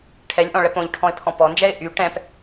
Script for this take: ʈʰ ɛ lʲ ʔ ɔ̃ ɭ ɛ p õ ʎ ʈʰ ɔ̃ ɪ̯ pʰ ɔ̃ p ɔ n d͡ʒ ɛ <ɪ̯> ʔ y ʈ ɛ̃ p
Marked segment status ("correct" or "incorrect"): correct